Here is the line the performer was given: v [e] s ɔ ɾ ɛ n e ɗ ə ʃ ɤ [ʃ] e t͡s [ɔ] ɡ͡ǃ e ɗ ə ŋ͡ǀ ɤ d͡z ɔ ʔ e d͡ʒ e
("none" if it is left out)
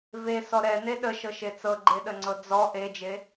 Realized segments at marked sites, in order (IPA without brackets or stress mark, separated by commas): e, ʃ, ɤ